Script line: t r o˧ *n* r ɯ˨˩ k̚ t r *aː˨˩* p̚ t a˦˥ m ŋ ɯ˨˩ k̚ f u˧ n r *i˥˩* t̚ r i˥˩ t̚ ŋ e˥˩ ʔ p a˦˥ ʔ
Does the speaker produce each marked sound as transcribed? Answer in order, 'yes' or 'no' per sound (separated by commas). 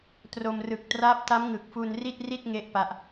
no, no, yes